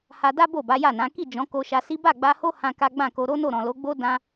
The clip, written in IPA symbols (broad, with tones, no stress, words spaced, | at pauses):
ha˧da˦ bo˦˨ba˨˦ja˦˨nã˨˦ ki˦˨d͡ʒɔ̃˨˦ ko˧ʃa˧si˦ ba˦˨ɡ͡ba˧ho˦ hã˦ka˦ ɡ͡bã˦˨ko˧ ɾo˦no˦˨ɾɔ̃˨lo˨˦ ɡ͡bo˦ dã˦